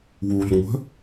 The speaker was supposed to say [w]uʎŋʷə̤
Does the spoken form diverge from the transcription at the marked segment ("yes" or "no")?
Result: no